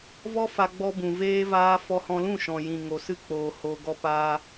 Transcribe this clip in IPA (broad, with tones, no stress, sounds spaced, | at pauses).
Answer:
v ɔ˦ f a˧ ɡ͡b ɔ˧ b ũ˨ v eː˧ v aː˧ f ɔ˧ h ɔ̃˧ l ũ˦˨ ʃ ɔ̃˨ j ĩ˨ ŋ o˨ s ɨ˦ k͡p oː˨ h o˧ ɡ ɔ˦ p aː˦